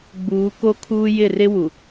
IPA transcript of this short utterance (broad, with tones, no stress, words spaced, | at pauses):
ɡ͡buː˨˦ko˦kʰuː˦ jɪ˦˨rɪ˦wu˨